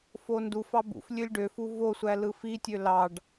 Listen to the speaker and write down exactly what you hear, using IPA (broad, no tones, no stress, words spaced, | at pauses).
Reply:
fondufɑ bṵf lʲølʲɖøfu vosʷæ lɯfitʲø lɑɖ